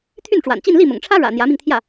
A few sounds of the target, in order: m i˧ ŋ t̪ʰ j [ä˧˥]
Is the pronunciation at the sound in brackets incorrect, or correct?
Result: incorrect